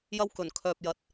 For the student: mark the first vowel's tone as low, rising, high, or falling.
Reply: high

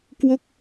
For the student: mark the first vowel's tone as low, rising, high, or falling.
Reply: falling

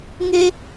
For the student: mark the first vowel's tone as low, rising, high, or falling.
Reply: high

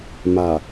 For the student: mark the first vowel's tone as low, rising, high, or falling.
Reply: low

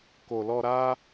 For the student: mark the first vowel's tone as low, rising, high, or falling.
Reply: low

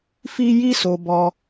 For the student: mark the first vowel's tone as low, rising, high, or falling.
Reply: high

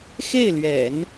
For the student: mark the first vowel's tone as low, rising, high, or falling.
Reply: falling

